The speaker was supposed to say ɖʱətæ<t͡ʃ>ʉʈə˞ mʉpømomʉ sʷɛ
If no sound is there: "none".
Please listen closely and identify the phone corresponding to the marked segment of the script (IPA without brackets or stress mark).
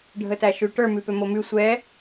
ʃ